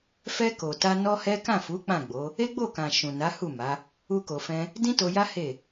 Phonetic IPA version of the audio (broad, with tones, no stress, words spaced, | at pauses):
fɛ˧ ko˨ta˧ nɔ˦hɛ˦ kã˦˨fu˨˦ k͡pã˦˨ɡ͡bo˨˦ | e˦ɡ͡bo˦˨kã˨ ʃũ˨na˨˦hu˦˨ ma˨˦ | u˦ko˧fɛ̃˦ | dĩ˦to˧ja˦ he˦˨